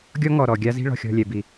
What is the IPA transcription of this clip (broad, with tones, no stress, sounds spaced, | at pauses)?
ɡʲ ɔ˦ ŋ ɔ˨ ɾ ɔ˨ ɡʲ a˦ z i̤˦ ɭ ɔ̤˨ xʲ ɔ̤˦˨ lʲ ɛ˨ b i˨